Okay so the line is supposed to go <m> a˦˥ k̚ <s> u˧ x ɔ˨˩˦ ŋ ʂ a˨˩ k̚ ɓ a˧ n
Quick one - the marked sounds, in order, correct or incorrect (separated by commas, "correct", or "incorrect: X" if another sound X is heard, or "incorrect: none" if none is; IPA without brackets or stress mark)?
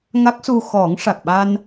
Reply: incorrect: ŋ, correct